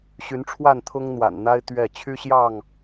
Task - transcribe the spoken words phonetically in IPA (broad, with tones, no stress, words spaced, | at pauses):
ɕy˨˦nʈ͡ʂʰwa˥˨nt̪ʰʊ˦ŋ n̪wa̰˨˩nn̪a˦ɪ̯ t̪ɥɛ˥˨ t͡ɕʰy˦ɕjɑ˥˨ŋ